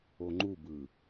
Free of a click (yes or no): no